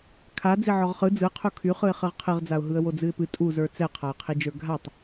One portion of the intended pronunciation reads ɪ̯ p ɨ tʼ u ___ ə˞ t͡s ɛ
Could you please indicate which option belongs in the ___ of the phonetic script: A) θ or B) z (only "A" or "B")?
B